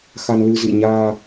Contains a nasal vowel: no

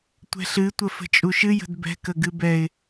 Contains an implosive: no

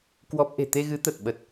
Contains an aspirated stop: no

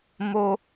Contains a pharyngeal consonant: no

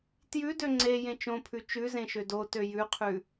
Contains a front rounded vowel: yes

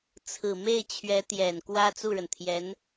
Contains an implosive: no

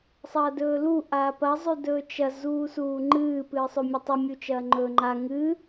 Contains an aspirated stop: no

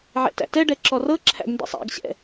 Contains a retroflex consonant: yes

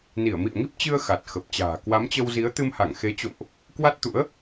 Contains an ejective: no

